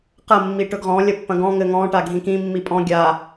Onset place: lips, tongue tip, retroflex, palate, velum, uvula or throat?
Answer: uvula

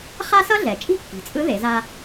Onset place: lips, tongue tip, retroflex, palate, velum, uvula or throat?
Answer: uvula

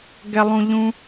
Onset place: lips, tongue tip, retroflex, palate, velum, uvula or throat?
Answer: velum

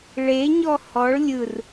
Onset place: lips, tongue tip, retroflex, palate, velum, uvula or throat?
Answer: retroflex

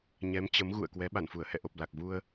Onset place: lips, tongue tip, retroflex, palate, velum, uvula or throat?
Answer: palate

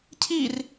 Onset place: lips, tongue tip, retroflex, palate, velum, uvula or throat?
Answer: palate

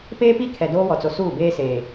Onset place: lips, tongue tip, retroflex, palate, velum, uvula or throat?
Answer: lips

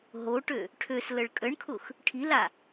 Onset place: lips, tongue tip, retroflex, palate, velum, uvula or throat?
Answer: throat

